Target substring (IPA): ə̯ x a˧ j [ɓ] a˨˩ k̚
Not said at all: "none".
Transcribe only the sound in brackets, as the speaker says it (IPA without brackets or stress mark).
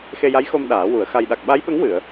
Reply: ɗ